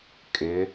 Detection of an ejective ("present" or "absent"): present